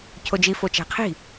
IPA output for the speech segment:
cʰ o d͡ʒ i f o t͡ʃ æ̤ qʰ i̤

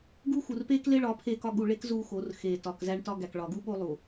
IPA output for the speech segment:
ɡ u˦ x u˨ r p eː˦ k l e˦ ɭ ɒ˨˦ pʰ eː˦ k ɒ˦ ɠ u˨ ɭ e˦ k z uː˦ x o˨˦ r x eː˨ t ɒ˨ k z æ˦ ɳ t ɒ˦ ɡ æ˨ k ɭ ɒ˨ ɡ u˦ ɓ o˦ lˠ u˨

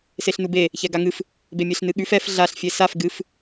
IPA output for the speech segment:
s e ɬ n u b e | ç ɛ ɡ a ŋ ɨ f | b e mʲ e ɬ n ɨ ɠ ʉ f ɛ f ɮ a ɬ fʲ e s a f ɡ ɨ f

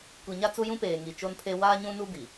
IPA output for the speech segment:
kʷ i˨ ɲ a˦ t͡s u˦ j ũ˦ p eː˨ ŋ i˨ t͡ʃ o˦ n pʰ e˦ w aː˦ ɲ ũ˦ n u˦ b i˨

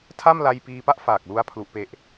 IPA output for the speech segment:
tʰ a˥˩ m l a˧ j p iː˧ p a˥˩ ʔ f aː˨˩ k̚ l u˧ a̯ pʰ l u˦˥ ʔ p e˦˥ ʔ

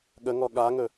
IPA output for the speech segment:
ɠ ə ŋ ɔ ɠ a ŋ ɵ

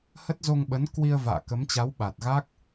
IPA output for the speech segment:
h ə˦˥ t̚ z o˧ ŋ ɓ ə˨˦ n k w i˧ ə̯ v a̰ː˧˨ k ə˨˦ m t͡ɕ a˨˦ w ɓ a˨˩ t̚ ɣ a˦˥ k̚

